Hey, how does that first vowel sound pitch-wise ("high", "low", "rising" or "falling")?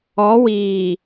rising